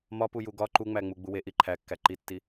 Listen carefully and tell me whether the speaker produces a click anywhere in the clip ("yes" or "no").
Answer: yes